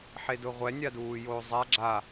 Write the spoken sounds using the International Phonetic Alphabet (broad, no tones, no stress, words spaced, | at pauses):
ħedʊʁʷɛ nʲaduːjoːzˤa ɡ͡ǁa